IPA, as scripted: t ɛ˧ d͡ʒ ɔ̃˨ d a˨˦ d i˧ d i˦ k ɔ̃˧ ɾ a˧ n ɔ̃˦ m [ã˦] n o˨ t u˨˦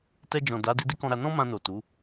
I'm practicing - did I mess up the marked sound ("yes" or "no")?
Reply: yes